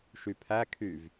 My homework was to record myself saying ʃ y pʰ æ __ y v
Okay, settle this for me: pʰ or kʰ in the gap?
kʰ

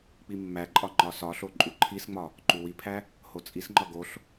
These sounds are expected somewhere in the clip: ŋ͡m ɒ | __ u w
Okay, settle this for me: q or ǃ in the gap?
ǃ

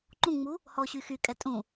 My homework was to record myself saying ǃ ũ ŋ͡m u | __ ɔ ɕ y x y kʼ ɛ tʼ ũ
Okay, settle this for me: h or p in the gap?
h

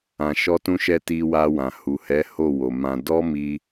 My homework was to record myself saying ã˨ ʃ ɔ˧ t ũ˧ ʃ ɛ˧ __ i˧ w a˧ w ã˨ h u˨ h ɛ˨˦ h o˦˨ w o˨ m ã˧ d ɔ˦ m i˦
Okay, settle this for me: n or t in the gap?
t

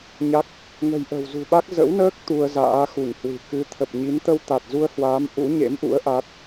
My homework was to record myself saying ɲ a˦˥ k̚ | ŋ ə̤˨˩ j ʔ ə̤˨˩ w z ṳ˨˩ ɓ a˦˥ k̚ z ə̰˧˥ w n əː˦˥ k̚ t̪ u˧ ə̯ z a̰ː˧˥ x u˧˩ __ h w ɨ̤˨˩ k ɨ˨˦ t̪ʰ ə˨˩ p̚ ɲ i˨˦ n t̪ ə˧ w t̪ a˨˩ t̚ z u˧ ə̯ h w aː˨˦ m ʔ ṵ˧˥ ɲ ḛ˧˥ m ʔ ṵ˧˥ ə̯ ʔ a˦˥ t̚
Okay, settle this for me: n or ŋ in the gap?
ŋ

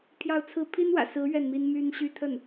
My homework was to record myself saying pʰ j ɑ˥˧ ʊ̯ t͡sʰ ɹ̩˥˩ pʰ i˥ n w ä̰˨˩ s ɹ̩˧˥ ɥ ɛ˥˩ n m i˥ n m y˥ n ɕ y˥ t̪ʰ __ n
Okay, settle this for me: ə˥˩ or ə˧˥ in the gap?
ə˥˩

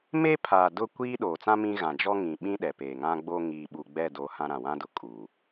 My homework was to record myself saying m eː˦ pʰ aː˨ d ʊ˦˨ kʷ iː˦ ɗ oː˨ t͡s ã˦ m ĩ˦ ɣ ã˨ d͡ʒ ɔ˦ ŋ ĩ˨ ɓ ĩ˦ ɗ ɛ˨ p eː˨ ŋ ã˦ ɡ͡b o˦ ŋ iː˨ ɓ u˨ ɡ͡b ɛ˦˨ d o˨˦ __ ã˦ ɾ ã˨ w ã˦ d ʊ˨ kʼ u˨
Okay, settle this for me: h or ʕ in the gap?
h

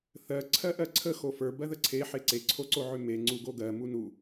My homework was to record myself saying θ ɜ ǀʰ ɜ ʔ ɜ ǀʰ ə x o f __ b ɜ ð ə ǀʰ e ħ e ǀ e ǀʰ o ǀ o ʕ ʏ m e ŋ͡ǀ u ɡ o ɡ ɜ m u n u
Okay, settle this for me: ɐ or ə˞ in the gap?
ə˞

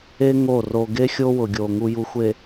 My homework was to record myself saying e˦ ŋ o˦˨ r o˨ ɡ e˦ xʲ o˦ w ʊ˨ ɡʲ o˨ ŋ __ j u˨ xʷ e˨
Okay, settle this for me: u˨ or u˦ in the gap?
u˨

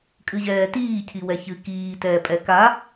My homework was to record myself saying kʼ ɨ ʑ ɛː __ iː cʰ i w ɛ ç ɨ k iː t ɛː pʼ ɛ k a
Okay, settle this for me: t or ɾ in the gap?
t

